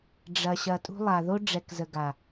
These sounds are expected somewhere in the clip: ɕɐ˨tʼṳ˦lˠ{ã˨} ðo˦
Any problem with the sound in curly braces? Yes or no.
yes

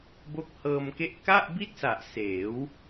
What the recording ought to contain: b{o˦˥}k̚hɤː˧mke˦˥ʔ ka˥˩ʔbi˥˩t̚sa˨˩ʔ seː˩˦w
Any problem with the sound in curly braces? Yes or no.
no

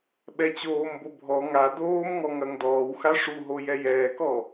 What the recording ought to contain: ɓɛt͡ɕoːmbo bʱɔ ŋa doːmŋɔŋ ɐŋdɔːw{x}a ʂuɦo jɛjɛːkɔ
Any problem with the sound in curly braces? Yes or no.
no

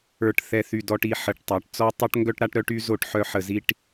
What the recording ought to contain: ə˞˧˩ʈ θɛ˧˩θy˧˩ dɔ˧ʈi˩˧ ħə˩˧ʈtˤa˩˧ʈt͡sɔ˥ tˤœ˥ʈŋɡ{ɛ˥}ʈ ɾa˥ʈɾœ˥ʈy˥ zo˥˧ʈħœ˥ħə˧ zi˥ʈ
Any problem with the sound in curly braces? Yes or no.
yes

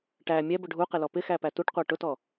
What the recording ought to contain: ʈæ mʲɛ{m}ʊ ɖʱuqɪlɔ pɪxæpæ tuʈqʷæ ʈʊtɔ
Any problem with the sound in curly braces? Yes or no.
yes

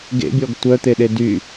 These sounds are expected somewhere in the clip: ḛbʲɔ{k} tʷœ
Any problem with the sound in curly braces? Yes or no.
yes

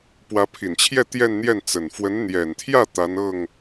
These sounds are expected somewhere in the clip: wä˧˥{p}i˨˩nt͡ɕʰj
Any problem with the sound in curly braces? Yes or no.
yes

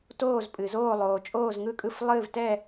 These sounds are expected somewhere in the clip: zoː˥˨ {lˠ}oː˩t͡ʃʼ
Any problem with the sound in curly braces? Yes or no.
no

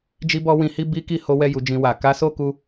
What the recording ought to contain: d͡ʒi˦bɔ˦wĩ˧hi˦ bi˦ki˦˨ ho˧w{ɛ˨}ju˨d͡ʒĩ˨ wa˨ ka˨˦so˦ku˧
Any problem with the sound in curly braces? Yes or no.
yes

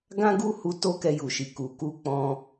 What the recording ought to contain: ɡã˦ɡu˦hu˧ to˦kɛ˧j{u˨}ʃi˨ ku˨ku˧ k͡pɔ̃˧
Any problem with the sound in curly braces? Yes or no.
no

